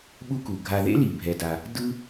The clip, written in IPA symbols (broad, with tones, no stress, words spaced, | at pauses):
ɓu˥ku˩ɡʱa˧ ðḛ˥li˩bʱɛ˩da˩ | dɯ˥